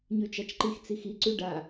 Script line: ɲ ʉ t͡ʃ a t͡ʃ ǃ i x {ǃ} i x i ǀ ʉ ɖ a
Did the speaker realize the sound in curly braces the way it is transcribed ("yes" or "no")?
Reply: no